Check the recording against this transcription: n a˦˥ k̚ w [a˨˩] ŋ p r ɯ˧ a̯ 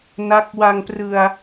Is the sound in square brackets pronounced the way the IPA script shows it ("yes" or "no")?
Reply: no